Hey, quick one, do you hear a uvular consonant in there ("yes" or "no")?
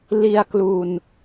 no